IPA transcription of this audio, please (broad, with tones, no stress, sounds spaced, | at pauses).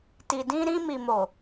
t i˨ d ĩ˧ ɾ ĩ˧ m i˨ m o˨